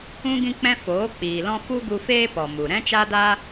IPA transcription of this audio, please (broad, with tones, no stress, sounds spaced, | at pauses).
ũ˦ ɡ ĩ˦ k͡p ɛ̃˦ f oː˨˦ k͡p iː˨ l ɔ̃˦ f u˦ ɡ u˧ f eː˦ p ɔ˨ m u˨ ɾ ɛ̃˦ t͡ʃ a˦ d a˦